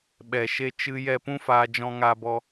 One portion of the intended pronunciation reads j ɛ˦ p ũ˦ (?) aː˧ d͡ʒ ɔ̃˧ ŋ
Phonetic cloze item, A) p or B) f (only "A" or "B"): B